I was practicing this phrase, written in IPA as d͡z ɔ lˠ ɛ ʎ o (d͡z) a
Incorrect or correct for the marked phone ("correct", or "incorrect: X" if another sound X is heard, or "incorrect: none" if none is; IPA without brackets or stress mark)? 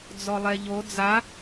correct